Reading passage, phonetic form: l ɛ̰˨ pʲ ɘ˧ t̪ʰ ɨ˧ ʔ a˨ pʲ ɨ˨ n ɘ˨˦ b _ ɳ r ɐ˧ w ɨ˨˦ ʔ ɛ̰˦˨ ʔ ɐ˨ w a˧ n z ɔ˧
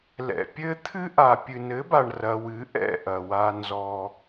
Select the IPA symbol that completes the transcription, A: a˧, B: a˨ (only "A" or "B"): B